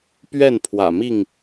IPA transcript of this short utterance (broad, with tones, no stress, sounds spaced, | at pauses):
p ɥ ɛ˥˨ n pʰ w ä̰˨˩ m i˥˨ ŋ